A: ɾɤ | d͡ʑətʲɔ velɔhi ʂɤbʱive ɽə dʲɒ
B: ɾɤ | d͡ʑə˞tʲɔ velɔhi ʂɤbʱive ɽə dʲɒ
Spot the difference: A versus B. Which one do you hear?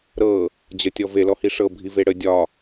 A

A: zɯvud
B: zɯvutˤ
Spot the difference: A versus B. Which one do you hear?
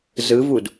A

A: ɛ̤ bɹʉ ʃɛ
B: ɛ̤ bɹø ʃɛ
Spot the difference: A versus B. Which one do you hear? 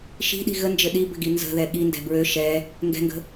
B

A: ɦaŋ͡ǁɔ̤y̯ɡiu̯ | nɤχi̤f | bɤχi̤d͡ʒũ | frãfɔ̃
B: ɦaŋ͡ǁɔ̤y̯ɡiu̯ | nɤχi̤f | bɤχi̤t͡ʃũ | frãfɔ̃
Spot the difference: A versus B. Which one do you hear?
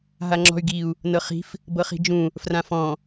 A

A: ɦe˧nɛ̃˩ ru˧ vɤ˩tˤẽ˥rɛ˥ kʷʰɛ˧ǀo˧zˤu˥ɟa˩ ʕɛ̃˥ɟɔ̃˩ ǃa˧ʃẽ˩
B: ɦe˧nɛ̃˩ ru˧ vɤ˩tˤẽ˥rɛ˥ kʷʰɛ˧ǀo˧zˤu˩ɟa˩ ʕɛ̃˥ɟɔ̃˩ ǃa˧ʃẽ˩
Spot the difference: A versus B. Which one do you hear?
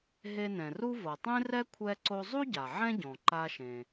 A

